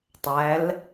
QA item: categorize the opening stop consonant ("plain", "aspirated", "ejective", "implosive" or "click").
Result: plain